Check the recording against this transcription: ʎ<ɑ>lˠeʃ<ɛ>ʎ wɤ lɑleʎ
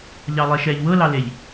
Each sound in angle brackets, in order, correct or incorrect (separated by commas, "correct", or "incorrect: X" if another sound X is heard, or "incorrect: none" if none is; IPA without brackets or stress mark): correct, correct